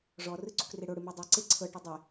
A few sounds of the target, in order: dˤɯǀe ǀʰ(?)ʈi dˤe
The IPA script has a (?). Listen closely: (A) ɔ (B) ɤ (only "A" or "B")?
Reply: B